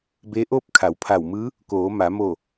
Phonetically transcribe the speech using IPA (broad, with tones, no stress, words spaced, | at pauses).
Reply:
be˧˥ʔo˥˨p̚ kʰa˩˧wpʰa˧˩wmɯː˧˥ | koː˩˧ma˩˧mo˧˩